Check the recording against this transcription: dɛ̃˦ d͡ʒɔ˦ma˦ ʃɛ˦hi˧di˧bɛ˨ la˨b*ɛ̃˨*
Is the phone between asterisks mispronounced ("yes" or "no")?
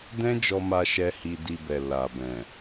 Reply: no